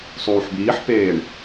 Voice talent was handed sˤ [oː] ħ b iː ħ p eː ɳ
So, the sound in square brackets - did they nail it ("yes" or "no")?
no